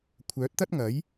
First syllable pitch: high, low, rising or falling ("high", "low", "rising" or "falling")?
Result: rising